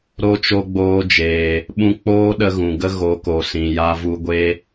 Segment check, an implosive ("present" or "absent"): present